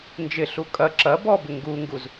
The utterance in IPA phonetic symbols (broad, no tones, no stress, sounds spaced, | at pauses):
n d͡ʒ ɪ ɬ u kʼ ɐ ǁ ɐ b ɔ b ɪ ŋ ɡ u ŋ ɡ u z